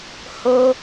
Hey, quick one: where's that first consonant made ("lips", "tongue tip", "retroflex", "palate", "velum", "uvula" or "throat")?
throat